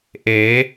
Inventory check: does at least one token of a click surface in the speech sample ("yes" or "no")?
no